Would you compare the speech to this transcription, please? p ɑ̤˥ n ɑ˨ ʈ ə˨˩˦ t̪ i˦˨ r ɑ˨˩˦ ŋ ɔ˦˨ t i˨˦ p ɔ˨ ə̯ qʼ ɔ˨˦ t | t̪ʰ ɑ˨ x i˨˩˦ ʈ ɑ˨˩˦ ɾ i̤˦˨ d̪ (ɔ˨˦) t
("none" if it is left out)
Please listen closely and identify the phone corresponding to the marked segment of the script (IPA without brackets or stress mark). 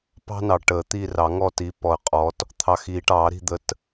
ə˨˦